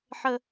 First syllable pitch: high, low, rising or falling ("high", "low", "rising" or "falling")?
high